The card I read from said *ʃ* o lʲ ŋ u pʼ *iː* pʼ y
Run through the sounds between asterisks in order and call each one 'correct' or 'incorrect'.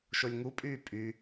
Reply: correct, incorrect: yː

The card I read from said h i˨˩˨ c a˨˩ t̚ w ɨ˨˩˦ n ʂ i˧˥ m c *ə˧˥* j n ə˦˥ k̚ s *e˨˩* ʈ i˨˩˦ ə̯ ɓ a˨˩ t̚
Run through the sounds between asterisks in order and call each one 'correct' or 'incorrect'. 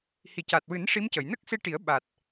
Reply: incorrect: ə˨˩˨, incorrect: e˧

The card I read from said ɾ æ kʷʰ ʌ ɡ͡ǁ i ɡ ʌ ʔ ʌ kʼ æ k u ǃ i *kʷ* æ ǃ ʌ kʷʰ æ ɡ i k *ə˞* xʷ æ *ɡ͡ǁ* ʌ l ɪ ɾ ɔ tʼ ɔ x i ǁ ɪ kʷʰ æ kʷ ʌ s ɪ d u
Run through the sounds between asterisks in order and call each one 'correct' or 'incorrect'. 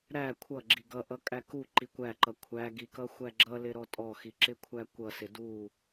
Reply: correct, incorrect: ʌ, correct

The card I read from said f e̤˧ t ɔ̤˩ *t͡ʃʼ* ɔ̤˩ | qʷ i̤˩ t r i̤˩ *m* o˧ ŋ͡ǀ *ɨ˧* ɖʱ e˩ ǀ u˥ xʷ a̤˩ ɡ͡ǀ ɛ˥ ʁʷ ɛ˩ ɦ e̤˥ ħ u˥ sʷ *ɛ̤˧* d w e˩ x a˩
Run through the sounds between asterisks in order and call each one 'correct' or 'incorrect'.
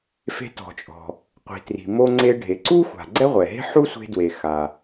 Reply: correct, correct, incorrect: e˧, incorrect: e̤˧

